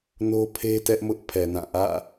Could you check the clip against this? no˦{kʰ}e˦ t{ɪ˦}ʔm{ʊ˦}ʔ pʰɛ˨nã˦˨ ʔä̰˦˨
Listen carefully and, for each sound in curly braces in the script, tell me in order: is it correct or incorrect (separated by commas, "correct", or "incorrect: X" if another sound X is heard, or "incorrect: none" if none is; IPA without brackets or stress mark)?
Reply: incorrect: pʰ, incorrect: ɛ˦, correct